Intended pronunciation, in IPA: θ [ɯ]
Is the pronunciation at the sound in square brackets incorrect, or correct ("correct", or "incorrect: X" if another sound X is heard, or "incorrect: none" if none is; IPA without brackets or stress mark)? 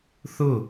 incorrect: ʊ